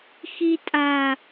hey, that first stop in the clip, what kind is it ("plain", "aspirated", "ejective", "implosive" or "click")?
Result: ejective